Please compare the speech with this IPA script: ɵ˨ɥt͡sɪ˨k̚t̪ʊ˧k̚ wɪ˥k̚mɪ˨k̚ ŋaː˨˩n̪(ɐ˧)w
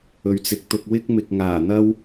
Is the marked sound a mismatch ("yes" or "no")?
yes